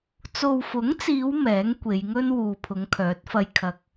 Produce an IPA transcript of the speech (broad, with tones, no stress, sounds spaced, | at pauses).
t͡s o˨ w f ʊ˨˥ ŋ t͡s iː˨˧ w m ɛː˨˥ ŋ kʷ e˨˧ j ŋ ɵ˥ n w uː˨ pʰ ʊ˨˧ ŋ kʰ œː˨˥ t̚ f ɐ˧ j kʰ ɐ˨ k̚